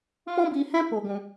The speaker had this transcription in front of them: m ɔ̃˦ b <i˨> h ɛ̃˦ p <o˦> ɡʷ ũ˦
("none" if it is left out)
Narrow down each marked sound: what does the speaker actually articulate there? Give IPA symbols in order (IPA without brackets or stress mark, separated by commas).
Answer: i˧, o˦